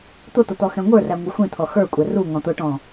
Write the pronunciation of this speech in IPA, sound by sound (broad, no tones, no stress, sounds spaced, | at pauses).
t̪ ʊ t̪ ʊ t̪ ɔ x ɛ̃ ŋʷ ə˞ r æ ŋʷ ʌ xʷ ĩ t̪ʰ ɔ x ə˞ kʷʼ ɛ r u ŋ ɔ̃ t̪ ʊ ʈ ɔ̃